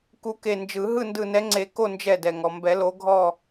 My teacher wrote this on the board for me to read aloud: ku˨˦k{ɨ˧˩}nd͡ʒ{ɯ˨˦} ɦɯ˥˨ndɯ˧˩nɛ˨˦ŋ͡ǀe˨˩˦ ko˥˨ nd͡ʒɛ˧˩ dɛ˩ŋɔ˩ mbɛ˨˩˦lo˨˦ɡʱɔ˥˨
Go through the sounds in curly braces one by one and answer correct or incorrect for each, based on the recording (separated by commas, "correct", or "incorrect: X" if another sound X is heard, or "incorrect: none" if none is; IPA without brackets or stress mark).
incorrect: e˧˩, incorrect: ɯ˨˩˦